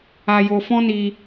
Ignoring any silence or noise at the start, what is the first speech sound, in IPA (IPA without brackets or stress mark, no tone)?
a